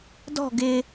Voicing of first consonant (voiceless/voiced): voiced